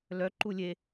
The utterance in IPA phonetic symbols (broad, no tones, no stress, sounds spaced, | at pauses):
l œ ǃ u lʲ e